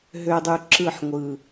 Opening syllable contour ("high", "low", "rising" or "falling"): low